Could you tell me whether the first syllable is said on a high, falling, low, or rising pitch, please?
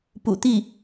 low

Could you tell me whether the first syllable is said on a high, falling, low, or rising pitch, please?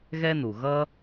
high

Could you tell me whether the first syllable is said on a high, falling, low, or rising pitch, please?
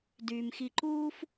low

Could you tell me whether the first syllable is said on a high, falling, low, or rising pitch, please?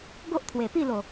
high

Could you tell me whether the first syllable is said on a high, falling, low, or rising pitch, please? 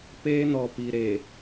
high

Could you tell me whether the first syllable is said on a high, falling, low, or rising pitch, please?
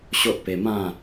high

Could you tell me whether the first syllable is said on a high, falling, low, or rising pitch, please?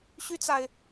high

